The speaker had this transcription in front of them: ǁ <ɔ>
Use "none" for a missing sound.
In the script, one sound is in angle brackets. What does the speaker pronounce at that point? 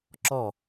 ɔ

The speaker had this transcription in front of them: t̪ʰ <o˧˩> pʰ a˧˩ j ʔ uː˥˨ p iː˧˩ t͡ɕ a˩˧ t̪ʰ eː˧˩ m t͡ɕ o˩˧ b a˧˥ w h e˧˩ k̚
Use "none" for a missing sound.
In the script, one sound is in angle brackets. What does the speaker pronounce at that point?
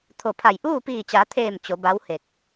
o˧˩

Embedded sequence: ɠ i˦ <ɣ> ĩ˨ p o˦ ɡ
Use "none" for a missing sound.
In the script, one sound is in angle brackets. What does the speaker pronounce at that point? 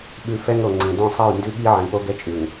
ʕ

